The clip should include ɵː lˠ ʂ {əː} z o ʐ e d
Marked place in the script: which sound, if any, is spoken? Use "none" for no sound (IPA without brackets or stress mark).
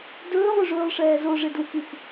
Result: ɛː